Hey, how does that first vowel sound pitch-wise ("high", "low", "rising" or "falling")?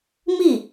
falling